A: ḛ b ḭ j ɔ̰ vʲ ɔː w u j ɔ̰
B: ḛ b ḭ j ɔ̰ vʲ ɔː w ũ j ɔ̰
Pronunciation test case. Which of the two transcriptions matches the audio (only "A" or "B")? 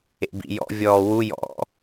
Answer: A